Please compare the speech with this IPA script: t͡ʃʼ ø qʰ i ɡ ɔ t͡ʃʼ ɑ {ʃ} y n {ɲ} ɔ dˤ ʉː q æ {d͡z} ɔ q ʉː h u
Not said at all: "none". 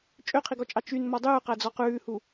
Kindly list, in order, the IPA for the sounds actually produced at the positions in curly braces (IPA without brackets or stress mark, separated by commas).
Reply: t͡ʃ, m, d͡z